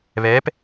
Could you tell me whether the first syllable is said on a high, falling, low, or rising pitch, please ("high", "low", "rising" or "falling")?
rising